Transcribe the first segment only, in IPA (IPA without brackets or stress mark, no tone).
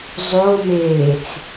zˤ